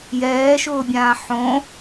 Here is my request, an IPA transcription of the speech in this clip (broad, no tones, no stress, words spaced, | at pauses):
jɛːʃʊːbʲãː ħõ